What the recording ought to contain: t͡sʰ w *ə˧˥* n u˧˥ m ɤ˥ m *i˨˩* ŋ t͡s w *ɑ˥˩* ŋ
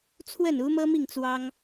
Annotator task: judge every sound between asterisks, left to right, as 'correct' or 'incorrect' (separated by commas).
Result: incorrect, incorrect, incorrect